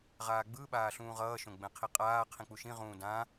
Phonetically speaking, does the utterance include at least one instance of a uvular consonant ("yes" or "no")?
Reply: yes